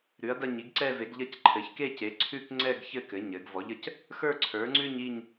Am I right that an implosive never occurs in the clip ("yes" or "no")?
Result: yes